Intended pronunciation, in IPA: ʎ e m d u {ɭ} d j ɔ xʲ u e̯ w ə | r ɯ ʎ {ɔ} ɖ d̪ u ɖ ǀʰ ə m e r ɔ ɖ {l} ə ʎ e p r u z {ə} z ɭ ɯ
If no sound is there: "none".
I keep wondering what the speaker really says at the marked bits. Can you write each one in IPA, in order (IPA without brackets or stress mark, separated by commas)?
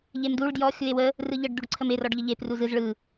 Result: ɭ, ə, ʎ, ɯ